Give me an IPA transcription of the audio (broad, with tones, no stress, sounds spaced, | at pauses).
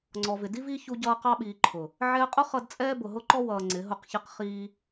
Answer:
ŋ͡ǀ ɔ˨ v ɪ˨ d i˦ v iː˦ ç u˧ ɟ ʌː˧ q ɑ˧ ɓ iː˨ ǃʰ ʊ˨ | ʕ ɛː˧ qʼ ʊ˦ χ ʌ˧ d t͡sʼ ɛː˦ b ʊ˨ ɦ ʊ˧ ǃ ɔ˧ w ʌː˨ ŋ͡ǀ ɪ˨˦ ɦ ʊ˦˨ q ç ɪ˦ q χ iː˧